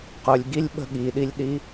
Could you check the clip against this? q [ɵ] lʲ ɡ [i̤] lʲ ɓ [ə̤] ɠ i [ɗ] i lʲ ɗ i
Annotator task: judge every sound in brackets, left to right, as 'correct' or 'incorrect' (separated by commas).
correct, incorrect, correct, correct